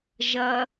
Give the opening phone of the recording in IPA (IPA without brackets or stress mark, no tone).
ʒ